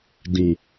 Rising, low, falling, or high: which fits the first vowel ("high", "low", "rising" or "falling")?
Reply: low